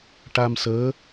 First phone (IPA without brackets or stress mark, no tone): ʈ